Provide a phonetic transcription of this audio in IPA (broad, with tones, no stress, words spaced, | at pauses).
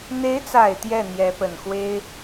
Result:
n̪e˧˥ɪ̯t͡sa˨˩ɪ̯ t̪jɛ˥˩n̪jɛ˧˥pə˨˩nxwe˥ɪ̯